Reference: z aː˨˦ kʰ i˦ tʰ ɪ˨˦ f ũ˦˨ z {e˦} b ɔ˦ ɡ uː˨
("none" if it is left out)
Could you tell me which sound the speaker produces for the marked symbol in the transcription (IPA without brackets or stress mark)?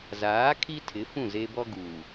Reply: e˦